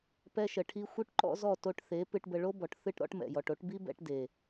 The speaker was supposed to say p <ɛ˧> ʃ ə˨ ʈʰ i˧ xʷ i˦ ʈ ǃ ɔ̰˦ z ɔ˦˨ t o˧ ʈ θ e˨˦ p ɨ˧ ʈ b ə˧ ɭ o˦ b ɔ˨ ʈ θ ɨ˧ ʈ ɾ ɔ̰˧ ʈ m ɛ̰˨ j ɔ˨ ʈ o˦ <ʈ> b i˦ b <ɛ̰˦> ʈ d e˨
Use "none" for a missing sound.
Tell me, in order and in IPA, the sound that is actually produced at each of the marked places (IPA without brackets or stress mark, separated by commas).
ɛ˧, ʈ, ɛ̰˧